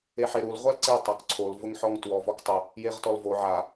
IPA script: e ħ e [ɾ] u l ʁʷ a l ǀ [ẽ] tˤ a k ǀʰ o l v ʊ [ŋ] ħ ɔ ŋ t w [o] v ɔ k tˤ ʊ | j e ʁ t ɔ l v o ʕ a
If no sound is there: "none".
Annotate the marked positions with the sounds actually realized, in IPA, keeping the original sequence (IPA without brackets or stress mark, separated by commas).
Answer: ɾ, e, ŋ, ɔ